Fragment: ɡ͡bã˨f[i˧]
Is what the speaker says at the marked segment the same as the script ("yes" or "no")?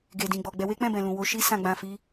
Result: yes